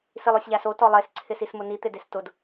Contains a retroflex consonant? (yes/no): no